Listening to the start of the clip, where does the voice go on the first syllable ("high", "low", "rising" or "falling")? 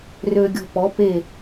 low